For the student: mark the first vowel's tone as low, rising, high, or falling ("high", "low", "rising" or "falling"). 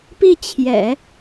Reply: falling